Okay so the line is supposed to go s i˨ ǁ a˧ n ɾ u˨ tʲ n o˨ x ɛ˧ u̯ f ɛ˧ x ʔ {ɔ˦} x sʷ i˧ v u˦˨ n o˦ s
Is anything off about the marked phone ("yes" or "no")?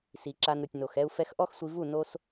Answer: no